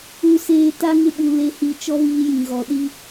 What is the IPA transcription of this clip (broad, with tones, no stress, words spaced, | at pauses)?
u˨seː˨ ta˦ŋɪ˦ɓu˨ le˨hi˨t͡ʃɔ˦ viː˦jĩ˨ɣɔ˨ ɗi˦